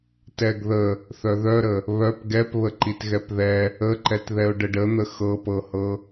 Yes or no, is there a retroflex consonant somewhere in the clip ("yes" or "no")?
yes